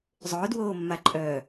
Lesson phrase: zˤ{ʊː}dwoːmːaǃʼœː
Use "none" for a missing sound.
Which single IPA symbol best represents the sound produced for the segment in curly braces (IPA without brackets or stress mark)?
ʊː